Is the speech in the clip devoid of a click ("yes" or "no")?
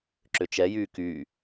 no